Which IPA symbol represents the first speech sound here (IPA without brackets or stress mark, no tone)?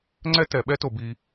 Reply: ŋ͡ǀ